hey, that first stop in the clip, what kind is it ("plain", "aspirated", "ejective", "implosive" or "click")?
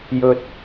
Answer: plain